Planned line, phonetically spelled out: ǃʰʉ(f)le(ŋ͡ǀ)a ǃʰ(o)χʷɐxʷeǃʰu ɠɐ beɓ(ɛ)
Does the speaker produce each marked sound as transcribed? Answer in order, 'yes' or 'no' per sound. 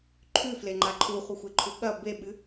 yes, no, no, no

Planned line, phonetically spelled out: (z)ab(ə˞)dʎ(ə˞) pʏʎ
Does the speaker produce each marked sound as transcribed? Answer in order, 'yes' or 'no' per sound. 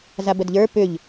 yes, no, yes

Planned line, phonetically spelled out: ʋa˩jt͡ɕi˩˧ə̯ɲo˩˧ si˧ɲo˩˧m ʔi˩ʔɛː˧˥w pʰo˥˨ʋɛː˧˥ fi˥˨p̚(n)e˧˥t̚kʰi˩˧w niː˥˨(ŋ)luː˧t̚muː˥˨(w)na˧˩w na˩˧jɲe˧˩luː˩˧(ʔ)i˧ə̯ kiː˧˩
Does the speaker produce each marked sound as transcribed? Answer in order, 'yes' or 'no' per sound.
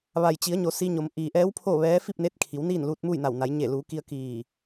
yes, no, no, no

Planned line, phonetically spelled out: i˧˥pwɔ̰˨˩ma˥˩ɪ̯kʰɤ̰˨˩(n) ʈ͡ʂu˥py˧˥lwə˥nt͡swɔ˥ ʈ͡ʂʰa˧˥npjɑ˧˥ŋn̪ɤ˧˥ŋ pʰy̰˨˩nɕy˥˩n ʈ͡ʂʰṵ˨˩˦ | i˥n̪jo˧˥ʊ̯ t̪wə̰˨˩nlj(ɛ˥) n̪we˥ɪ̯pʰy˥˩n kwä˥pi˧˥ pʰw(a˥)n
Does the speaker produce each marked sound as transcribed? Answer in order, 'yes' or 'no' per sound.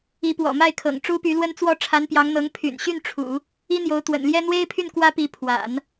no, yes, no

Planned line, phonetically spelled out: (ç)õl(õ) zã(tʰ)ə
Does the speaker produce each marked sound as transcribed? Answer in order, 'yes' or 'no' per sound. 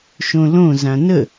no, yes, no

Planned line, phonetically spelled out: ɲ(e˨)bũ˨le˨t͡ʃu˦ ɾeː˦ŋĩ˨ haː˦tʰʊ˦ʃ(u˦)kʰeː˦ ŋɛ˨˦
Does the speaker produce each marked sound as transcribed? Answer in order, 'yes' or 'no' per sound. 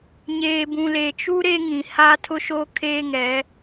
no, no

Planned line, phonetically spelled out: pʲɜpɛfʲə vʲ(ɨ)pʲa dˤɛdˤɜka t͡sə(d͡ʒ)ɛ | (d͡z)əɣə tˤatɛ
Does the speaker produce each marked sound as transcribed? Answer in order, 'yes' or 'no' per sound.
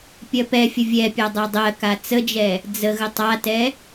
no, yes, yes

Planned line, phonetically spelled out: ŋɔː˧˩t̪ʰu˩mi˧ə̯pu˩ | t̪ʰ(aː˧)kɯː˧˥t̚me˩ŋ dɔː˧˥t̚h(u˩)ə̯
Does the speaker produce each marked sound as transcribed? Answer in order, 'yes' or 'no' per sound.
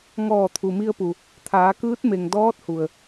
no, yes

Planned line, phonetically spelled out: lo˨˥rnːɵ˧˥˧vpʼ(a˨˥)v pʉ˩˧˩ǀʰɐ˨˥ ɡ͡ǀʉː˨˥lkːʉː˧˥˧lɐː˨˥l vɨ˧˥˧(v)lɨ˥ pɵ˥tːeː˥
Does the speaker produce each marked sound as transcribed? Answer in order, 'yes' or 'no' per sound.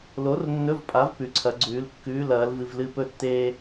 yes, yes

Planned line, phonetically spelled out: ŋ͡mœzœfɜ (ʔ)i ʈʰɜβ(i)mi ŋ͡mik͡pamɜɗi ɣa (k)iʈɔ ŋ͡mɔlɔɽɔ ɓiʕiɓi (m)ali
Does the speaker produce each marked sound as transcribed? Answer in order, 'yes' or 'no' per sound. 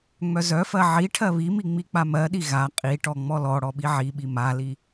no, yes, no, yes

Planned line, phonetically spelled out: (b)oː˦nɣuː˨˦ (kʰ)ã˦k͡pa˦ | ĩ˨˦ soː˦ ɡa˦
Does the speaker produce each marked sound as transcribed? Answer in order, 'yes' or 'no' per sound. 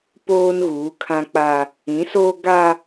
no, yes

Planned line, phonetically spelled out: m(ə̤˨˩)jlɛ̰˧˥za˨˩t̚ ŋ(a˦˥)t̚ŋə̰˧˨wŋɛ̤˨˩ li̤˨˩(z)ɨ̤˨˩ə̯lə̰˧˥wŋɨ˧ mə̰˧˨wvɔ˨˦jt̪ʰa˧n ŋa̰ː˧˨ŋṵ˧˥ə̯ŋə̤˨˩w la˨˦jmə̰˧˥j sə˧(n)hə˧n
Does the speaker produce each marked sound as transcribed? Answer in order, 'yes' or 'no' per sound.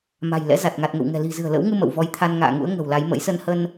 no, no, yes, yes

